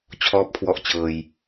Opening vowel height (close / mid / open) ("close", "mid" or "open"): mid